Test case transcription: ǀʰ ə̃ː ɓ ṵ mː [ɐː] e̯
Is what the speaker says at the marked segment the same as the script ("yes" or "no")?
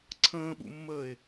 no